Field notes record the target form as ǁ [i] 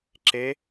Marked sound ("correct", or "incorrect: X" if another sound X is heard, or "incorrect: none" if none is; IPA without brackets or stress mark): incorrect: e